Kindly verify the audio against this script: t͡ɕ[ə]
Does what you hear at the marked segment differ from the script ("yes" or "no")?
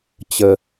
no